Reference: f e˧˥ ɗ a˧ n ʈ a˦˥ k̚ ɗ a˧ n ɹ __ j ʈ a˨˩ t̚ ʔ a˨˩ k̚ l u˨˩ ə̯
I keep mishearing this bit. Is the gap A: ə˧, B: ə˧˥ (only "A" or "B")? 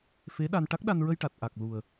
A